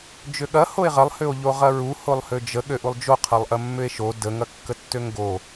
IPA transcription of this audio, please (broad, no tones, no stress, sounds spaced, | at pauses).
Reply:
d͡ʒ ʏ ɠ ɐ h o e̯ ʁ ɐ lˠ h ʏ o̯ ʎ o ʁ ɐ ɹ u h o lˠ h ø d͡ʒ ə ɠ ø ʔ u lˠ d͡ʒ o qʰ ɐ lˠ ʔ ɐ mː ʏ e̯ ʃ o d ə ŋ ɐ kː ə tː ø ŋ ɡ o